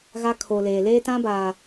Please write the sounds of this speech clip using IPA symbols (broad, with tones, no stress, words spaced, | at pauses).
ɣa˦kʰo˨leː˨ leː˦tã˦baː˨